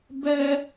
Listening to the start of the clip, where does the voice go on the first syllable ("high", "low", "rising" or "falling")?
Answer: high